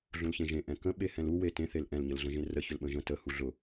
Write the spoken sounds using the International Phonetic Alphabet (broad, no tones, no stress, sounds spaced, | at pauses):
ɮ ũ l ç ẽ ʒ ẽ ʔ ɛ̃ k ə̃ ɓ e h ɛ̃ l u w e t ẽ θ e l ʔ ɛ̃ l ɲ ə l ɮ ə̃ ʒ ẽ r ə ç ʏ l ɓ ə̃ ʒ ə̃ t ə h u ɮ ʊ